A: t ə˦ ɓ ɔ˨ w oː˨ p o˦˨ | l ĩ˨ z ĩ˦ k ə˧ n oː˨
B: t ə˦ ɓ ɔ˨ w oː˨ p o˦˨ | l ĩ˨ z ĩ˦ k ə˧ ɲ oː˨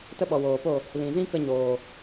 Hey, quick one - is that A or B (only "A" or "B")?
B